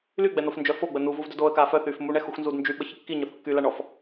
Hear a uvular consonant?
no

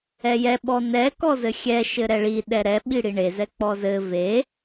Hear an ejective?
no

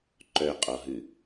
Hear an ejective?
yes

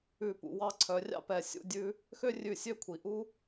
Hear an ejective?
no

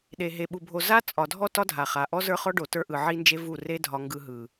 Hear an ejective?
yes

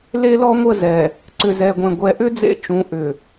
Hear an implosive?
no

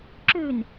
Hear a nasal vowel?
no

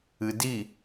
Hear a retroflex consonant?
no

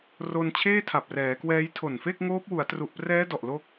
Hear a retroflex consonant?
no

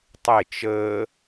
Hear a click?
no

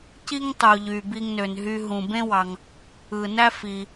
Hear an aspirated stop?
no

